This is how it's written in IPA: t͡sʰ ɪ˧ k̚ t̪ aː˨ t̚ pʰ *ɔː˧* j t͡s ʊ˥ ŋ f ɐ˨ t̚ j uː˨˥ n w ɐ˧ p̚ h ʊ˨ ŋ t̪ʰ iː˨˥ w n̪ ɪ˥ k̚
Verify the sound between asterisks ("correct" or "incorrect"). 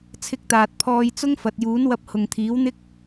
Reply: correct